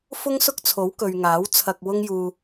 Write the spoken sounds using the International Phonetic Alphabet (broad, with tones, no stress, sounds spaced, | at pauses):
f ʊ˥ ŋ s ʊ˥ k̚ t͡sʰ o˨˥ w k ɵ˨ ɥ ŋ aː˨˥ w t͡sʰ ɐ˧ k̚ w ʊ˥ ŋ j uː˧